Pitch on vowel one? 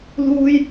high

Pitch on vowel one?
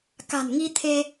low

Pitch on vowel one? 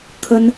high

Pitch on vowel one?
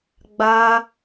high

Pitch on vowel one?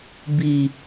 low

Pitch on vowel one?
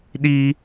high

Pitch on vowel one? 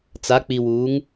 rising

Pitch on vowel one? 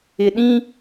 low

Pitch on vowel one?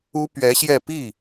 high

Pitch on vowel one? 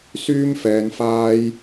high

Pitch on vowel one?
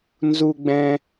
high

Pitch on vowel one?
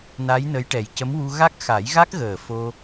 rising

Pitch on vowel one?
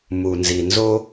low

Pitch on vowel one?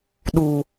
low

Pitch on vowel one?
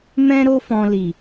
high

